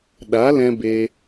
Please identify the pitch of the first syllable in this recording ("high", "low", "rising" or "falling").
rising